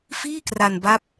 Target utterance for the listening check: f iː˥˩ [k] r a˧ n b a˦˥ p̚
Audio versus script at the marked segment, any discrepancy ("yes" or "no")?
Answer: no